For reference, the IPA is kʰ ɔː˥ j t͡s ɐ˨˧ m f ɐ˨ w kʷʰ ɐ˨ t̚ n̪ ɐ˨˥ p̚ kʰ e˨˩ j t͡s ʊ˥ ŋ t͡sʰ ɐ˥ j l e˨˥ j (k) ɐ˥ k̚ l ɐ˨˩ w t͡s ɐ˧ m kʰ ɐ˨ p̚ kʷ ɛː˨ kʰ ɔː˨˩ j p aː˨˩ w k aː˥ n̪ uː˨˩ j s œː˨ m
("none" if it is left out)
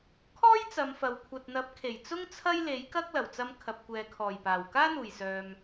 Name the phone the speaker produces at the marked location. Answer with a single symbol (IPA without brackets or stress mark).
k